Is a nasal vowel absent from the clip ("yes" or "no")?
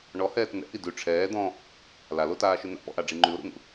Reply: no